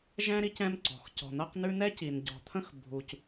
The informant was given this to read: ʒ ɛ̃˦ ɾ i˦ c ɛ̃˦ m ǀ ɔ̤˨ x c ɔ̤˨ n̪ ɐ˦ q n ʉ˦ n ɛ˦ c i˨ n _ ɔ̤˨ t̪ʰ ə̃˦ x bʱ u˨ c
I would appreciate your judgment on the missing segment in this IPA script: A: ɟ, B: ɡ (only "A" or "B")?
A